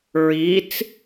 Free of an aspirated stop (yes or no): yes